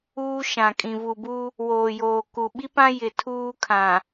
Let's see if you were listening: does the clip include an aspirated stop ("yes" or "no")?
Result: yes